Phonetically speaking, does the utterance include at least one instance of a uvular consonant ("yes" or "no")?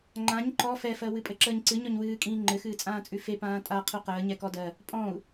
yes